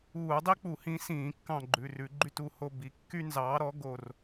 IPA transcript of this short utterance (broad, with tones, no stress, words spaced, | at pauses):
uː˧˩˧dˤi˥k͡pu˧˩˧hĩ˨˥ sĩː˧˩˧kːɑ̃˦˨ɡ͡ǃʉ˩˧˩rʉ˧˩˧ ɡ͡ǃy˦˨tu˦˨ho˦˨ bi˨˥kːy˥ nzɑː˨˥ɾɔ˨˥ ɡo˦˨r